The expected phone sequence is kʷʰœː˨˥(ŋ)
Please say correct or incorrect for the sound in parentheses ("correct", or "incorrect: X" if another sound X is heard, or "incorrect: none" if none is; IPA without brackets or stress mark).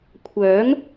correct